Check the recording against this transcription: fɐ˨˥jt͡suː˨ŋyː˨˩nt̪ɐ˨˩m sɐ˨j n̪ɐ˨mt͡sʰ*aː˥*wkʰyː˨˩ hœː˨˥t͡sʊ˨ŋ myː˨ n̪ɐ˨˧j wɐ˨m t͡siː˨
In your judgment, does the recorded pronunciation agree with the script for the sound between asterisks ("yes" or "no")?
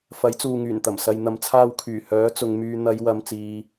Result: no